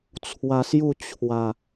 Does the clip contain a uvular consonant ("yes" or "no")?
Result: no